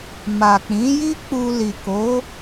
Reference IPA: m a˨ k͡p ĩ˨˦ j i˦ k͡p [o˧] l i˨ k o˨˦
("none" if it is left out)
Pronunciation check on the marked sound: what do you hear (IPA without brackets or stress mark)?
u˧